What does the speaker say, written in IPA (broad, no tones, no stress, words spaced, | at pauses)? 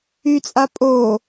yt͡sʼa pʼo